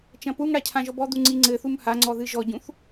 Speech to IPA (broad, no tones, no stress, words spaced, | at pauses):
t͡ʃɐ̃puŋɽa cʰãʒɔbɔd̪u ŋ͡ǀiŋ͡ǀɘθum haŋ͡ǀɔ ðɨʒɔɟũθ